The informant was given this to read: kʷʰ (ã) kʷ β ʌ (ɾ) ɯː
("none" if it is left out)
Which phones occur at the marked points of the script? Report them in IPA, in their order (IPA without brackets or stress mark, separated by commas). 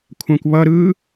ã, ɾ